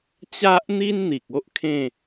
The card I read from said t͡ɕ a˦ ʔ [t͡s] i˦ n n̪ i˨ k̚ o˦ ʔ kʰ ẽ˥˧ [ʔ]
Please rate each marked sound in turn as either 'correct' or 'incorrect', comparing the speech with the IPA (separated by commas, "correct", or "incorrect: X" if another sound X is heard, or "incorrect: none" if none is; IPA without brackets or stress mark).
incorrect: n̪, incorrect: none